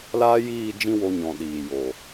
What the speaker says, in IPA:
l aː˦ j iː˦˨ d͡ʒ ĩ˦ w o˧ ɲ ɔ̃˨ ɗ iː˨ j o˨

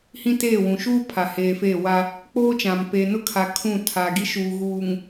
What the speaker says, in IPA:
h ĩ˦ t eː˦˨ w ũ˨ ʃ uː˦ pʰ a˨ h eː˨ f eː˦˨ w a˦ | k͡p oː˦ t͡ʃ ã˨ m p eː˨ n ʊ˦ kʰ a˨ kʰ ũ˦˨ tʰ aː˨ ɡ i˦ ʃ uː˨ ɣ uː˨ ŋ

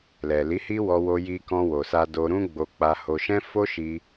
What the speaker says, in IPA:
l ɛ˨ l i˨˦ h i˦ w ɔ˧ w o˧ j i˧ k ɔ̃˧ w o˨ s a˧ d o˧ ɾ ũ˦ ɡ͡b o˧ k͡p a˧ h o˧ ʃ ɛ̃˦ f o˦ ʃ i˧

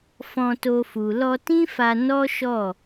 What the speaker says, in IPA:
f ɔ̃˧ t o˧ f u˨ l ɔ˧ t ĩ˦ f a˧ n ɔ˦ ʃ ɔ˦˨

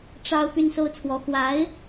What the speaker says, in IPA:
ʈ͡ʂ ɑ˥ ʊ̯ p y˥ n s o˥ ʊ̯ t͡sʰ w ɔ˧˥ x w a˧˥ ɪ̯

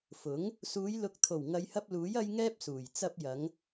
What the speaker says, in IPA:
f ʊ˨˥ ŋ | s uː˨˧ j l ʊ˨˥ k̚ t̪ʰ o˨˩ w ŋ ɐ˨˧ j h ɐ˧ p̚ l uː˨˥ j ɐ˥ j ŋ ɛː˥ p̚ s uː˨˩ j t͡s ɐ˧ p̚ j ɐ˨˧ ŋ

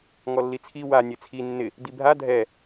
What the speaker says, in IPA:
ŋ ɔ lː i t͡sʰ i w a nʲ e t͡sʰ i nː ɪ | d̪ i bʱ a dʱ ɛ

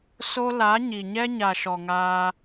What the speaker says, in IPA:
s o˦ l a˨˦ ɲ i˨ ɲ ɛ˦ ɲ a˨ ʃ ɔ˨ ŋ aː˧

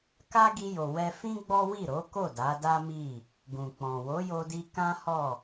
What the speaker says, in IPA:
k a˦ ɡ i˧ j o˨ w ɛ˧ f ĩ˦ ɡ͡b ɔ˦ w i˦˨ ɾ o˨˦ k o˦˨ d a˨˦ d a˦ m i˦˨ | ɡ ũ˨ k͡p ɔ̃˨ w o˨˦ j o˧ d i˧ k ã˦ h ɔ˦˨

